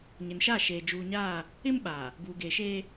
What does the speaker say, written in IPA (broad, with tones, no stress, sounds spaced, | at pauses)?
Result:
ɲ ɪ˨ n ʃ a˦˨ ʃ eː˨ d͡ʒ uː˨ ɲ aː˦˨ | ɪ˦ m ɓ aː˨ | b uː˨ ɡ eː˨ ʃ eː˦